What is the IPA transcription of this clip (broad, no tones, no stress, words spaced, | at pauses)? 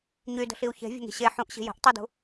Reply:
ɲydə̤ɬiu̯ çe̤vʲə̤ŋi̤ ɕe ħũʔɕi̤ jə̤ʔ tˤidṳ